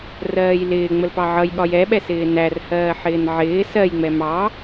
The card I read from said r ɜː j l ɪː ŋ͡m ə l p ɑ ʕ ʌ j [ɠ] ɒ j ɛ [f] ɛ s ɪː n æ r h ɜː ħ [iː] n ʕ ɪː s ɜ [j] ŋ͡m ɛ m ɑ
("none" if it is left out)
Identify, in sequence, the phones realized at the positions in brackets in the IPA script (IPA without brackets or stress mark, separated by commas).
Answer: ɠ, ɓ, ɪː, j